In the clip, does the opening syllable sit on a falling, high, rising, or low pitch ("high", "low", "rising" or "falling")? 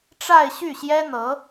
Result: falling